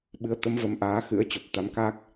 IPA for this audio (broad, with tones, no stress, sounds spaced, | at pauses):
ɓ ɨ˨˦ ə̯ t̪ ə˨˦ m v ə˨˦ m ʔ aː˨˦ x ɨ̰˧˥ ə̯ t͡ɕ o˨˩ p̚ t̪ a˨˦ m k a˦˥ k̚